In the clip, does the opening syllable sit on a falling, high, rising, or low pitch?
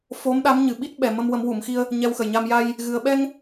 rising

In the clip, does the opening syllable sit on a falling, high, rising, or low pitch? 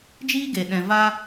high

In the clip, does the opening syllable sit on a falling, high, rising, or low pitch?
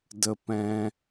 high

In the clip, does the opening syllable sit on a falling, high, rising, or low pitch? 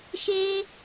high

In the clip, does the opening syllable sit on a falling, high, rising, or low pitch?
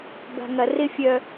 low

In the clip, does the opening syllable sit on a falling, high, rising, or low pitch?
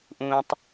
low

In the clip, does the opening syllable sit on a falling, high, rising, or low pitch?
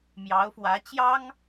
rising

